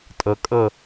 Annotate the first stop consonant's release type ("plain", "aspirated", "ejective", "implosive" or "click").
ejective